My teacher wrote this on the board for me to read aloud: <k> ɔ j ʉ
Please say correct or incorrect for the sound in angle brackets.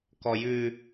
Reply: correct